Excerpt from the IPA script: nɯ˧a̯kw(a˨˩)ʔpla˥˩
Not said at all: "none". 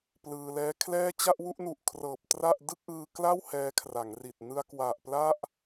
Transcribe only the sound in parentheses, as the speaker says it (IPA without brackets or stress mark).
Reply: a˨˩